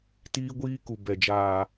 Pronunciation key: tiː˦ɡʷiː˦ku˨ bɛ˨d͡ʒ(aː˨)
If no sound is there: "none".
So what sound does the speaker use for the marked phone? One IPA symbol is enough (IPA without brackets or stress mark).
aː˨